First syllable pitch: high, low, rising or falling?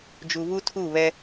low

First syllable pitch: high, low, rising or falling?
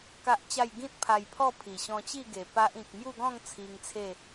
high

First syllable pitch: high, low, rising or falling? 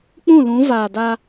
falling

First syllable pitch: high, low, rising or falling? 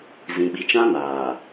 low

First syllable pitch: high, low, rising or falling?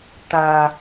low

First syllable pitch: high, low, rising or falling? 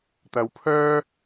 low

